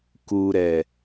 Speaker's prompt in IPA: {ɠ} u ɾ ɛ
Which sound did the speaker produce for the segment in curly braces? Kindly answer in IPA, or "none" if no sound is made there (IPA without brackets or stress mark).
k